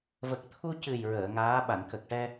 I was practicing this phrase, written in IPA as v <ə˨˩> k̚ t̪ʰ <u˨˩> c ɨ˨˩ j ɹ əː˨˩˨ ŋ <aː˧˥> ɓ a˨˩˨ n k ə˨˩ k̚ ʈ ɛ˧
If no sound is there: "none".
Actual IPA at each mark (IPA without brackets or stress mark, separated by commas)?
ə˨˩, u˧, aː˧˥